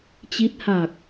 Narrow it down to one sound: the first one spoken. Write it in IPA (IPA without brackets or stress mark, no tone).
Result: t͡ɕ